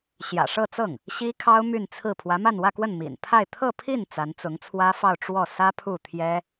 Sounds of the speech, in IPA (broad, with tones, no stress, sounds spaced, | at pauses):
ɕ j ä̰˨˩ ʂ ɤ˥˧ t͡s ɤ˥˩ ŋ | ɕ i˥ kʰ ɑ˥ ʊ̯ m y˥˧ n t͡sʰ ɹ̩˥˩ pʰ w ä˧˥ m a˥˧ n w ä˥˧ k w ə˥˩ n m ḭ˨˩ n pʰ a˥˧ ɪ̯ t̪ʰ ɤ˥˧ pʰ i˥˩ n t͡s a˧˥ n t͡s ʊ˧˥ ŋ t͡sʰ w ä˥ f ɑ˥˧ ʊ̯ ʈ͡ʂ w ɔ˥˩ s ä˥ pʰ u˥˩ t̪ʰ j ɛ˥